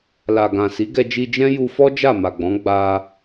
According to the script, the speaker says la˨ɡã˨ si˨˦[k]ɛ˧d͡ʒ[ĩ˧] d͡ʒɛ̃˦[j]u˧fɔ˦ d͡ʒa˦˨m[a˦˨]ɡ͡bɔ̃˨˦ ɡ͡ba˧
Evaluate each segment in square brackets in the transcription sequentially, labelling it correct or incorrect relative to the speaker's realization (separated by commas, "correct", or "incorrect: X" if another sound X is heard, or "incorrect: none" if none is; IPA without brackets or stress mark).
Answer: incorrect: ɡ, incorrect: i˧, correct, incorrect: a˨